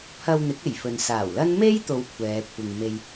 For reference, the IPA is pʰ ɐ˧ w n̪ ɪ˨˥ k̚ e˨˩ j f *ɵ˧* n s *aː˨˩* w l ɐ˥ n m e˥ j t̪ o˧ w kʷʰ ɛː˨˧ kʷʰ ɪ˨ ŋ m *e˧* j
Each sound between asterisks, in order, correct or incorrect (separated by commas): incorrect, correct, correct